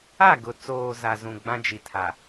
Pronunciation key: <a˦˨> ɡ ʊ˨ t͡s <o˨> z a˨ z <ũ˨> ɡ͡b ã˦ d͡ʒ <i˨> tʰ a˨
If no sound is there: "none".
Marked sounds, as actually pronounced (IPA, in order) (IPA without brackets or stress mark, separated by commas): a˦˨, oː˨, ũ˨, i˨